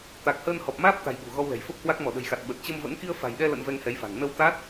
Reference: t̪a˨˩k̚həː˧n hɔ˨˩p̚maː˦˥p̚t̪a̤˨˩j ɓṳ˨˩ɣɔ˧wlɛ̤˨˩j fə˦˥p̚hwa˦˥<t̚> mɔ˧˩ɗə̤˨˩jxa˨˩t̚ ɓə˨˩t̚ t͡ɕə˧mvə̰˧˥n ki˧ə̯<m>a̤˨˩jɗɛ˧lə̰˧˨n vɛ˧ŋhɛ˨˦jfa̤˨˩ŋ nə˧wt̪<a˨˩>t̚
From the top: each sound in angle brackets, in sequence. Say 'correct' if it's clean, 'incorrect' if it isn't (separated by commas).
incorrect, incorrect, incorrect